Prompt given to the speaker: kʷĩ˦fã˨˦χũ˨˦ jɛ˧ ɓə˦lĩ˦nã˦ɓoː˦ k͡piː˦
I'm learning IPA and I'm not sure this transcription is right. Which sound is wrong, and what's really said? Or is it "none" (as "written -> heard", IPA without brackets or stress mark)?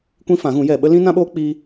χ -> ɣ